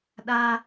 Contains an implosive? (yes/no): yes